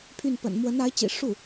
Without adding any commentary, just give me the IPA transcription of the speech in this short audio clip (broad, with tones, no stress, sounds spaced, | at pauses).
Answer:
pʰ y˥˩ n p ə̰˨˩ n m w ə˧˥ n a˧˥ ɪ̯ t͡ɕ ḭ˨˩ ʂ u˥˩